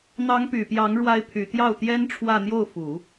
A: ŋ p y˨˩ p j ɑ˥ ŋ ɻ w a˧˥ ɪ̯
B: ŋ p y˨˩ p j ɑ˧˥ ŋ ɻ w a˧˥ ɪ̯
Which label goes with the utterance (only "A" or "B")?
B